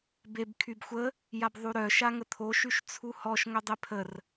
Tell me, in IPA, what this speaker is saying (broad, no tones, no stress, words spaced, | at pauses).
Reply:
beb kʰybxʷə | jabðˤuɾœ ʃaŋət̪ʰo ʃyʃt͡sʰuhɔʃ ŋœdˤepʰər